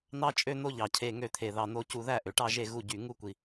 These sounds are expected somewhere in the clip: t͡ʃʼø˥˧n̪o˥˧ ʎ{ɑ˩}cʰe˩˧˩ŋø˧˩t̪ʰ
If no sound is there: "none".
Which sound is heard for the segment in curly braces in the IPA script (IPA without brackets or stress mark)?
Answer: ɑ˩